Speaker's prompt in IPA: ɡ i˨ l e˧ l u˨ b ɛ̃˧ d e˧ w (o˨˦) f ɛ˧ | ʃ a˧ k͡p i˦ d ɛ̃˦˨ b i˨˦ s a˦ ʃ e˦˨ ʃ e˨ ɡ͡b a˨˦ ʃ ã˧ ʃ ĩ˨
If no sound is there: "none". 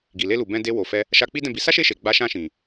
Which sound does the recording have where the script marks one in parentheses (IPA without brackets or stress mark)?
o˨